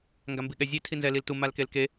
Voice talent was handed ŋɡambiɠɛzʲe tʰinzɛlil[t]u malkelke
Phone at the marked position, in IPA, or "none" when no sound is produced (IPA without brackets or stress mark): t